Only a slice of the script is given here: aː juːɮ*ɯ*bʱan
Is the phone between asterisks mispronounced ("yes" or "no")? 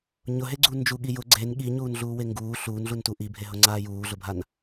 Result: yes